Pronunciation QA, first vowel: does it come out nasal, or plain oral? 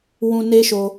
nasal